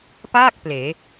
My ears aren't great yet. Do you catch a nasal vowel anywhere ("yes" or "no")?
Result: no